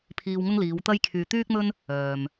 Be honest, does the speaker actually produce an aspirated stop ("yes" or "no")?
yes